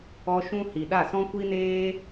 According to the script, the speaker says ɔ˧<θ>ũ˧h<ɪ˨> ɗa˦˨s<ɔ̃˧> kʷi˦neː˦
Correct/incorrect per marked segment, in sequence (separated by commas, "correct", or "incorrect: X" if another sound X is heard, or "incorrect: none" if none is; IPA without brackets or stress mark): incorrect: ʃ, incorrect: i˨, incorrect: ɔ̃˦